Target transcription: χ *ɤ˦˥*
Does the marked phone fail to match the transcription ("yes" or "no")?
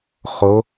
yes